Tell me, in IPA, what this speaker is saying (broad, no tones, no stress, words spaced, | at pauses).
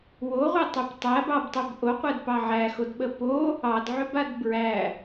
woʁʷɛtˤɵp tˤæbɑbtˤɵb ʔoqʷɛdpɑ ʕæxodɓə po | ɑdʕʏbad bɹæ